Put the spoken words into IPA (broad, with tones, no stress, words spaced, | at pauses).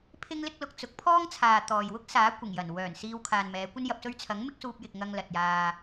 pʰɪ˥ŋlɪ˥k̚lʊ˧k̚ t͡sʊ˨˥k̚pʰɔː˥ŋt͡sʰaː˨ t̪ɔː˨j wʊ˥k̚saː˨˥ kʷɪ˨˩ŋjɐ˨˩n wœː˨˩n siː˧wkʰaː˨nmɛː˨˧ kʷɐ˧njɐ˨p̚sɵ˧ɥ t͡sʰɐ˨˥ŋ mɪ˥k̚suː˧p̚jɪ˨k̚ ŋɐ˧ŋlɐ˨t̚jaː˧